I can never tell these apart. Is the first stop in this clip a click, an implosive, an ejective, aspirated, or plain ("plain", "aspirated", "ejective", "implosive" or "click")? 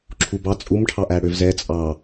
click